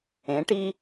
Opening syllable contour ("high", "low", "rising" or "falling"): rising